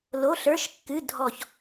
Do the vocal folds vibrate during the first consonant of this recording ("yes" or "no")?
yes